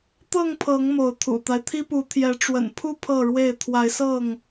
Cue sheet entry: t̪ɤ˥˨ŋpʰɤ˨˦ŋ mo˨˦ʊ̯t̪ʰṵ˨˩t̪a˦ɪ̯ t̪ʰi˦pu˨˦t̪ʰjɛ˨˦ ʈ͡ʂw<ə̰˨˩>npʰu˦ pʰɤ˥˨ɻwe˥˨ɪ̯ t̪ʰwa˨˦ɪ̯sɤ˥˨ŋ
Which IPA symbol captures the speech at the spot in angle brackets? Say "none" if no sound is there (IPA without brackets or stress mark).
ə̰˨˩